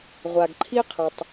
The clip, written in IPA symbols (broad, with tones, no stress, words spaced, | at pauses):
ʁʷa˨ɡǃʰi˦qʰʌ˨tˤ